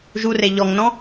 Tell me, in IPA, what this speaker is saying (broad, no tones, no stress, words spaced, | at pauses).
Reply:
ʒure ʎɔŋnɔ̃